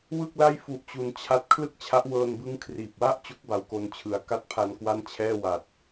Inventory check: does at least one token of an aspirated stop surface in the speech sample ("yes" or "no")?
yes